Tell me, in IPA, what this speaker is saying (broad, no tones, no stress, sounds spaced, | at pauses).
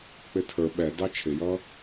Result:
k͡p ɪ tʰ ə˞ ɓ ɛ d ɑ t͡ʃʰ ɪ j ʌː